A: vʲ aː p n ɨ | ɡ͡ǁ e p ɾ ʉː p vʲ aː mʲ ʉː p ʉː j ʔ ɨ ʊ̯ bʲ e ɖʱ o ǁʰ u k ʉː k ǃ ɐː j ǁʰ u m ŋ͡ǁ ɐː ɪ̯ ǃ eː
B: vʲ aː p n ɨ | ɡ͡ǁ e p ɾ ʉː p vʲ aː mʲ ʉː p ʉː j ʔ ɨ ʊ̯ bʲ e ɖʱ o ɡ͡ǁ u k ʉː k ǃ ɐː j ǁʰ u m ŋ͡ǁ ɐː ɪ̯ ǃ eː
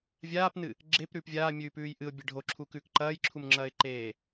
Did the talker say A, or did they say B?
A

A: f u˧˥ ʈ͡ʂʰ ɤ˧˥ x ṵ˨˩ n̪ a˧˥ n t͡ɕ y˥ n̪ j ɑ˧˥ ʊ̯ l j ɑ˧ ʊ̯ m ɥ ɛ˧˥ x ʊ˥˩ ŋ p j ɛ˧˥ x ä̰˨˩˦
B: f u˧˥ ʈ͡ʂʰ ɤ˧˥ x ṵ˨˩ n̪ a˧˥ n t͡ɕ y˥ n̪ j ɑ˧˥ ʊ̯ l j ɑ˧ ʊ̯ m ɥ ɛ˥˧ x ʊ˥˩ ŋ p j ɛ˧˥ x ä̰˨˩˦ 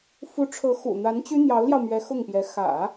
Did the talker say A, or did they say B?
A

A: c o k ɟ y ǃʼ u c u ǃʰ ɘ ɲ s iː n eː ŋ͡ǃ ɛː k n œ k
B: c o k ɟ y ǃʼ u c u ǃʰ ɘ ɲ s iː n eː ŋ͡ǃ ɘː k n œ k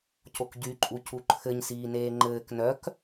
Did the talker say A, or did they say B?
B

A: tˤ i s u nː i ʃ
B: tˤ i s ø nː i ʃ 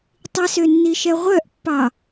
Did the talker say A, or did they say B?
B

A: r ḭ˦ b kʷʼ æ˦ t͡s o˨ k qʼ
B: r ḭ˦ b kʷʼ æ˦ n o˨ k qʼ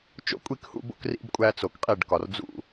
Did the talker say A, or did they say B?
A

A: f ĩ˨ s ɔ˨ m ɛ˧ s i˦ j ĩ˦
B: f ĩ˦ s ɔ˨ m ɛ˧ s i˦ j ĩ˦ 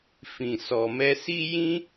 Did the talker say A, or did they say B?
A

